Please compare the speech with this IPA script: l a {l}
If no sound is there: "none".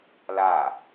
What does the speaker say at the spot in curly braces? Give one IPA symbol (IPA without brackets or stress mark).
none